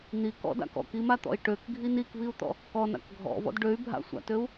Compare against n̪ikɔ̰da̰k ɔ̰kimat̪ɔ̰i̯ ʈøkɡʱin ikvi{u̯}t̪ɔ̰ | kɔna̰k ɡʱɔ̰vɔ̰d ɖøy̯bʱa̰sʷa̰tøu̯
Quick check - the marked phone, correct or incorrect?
correct